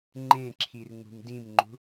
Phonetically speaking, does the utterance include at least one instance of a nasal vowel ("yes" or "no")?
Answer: yes